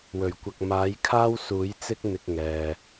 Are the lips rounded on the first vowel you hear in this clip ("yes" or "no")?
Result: yes